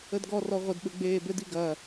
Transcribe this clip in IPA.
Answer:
ə d ɡ ɔ r ɔ ʁʷ ə d ɓ ɘ ɡ͡b eː b ɘ d i ɡ ɐ

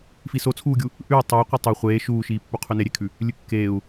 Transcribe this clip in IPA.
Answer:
f i s o t͡sʰ uː ɡʲ u | ʔ ʉ i̯ tˤ ɵ i̯ qʷ e tˤ ɵ χʷ eː ʃ uː ʃ iː pː u qʰ ʉ n e ɾʲ e kʰ ʉ | lʲ ɨ kː eː u̯

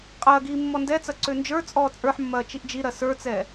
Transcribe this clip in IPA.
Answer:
qʼ ɐː ɡ iː mː ɔ n d ɛ t͡s ɐ ǀ ø n d͡ʒ ə˞ t͡sʼ ɔː t͡sʼ ə˞ ħ mː ɐː t͡ʃ i ʔ d͡ʒ i ɾ ɐ s ə˞ t͡s ɛː

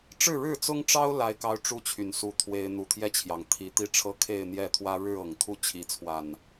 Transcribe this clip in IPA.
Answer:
ʈ͡ʂ ɻ̩˥˨ ɻ ɻ̩˥˨ t͡s ʊ˦ ŋ ʈ͡ʂ ɑ˦ ʊ̯ l a˦ ɪ̯ k ɑ˦ ʊ̯ ʈ͡ʂ u˦ t͡ɕʰ y˨˩ n s u˥˨ t̪ʰ w e˦ ɪ̯ n̪ u˨˩ t̪ʰ j ɛ˥˨ t͡ɕʰ j ɑ˩ ŋ t̪ʰ i˨˩ t̪ i˥˨ ʈ͡ʂʰ ɤ˦ kʰ e˥˨ ɪ̯ n̪ j ɛ˥˨ t̪ʰ w ä˦ ɻ ɻ̩˥˨ ɤ˨˩ ŋ t̪ʰ u˦ t͡ɕʰ i˨˦ t͡sʰ w a˨˩ n

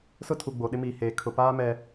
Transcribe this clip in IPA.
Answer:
s ʊ˦ tʰ u˨ ɡ͡b o˨ ɗ ɪ˦ m iː˨ h eː˨ kʰ ʊ˨ p aː˦ m ɛ˨

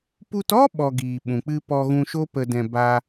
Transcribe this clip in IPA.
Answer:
p u˧ t ɔ˦ ɓ ɔ˨ ɡ iː˨ ɓ ũ˨ k͡p ɨ˧ p ɔ˧ ɣ ũ˧ ʃ o˦ p ə˧ d ɛ̃˧ b a˧

